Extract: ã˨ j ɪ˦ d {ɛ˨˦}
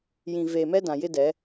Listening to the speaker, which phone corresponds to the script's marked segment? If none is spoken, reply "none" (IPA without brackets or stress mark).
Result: ɛ˨˦